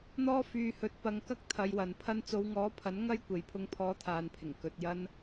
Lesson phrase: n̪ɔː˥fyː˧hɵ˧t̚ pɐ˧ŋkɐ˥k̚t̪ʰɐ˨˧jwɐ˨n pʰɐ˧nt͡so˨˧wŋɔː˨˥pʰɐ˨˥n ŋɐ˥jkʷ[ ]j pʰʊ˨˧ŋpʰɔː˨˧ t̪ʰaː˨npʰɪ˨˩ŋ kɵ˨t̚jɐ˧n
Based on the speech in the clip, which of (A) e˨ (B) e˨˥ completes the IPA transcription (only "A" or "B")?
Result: A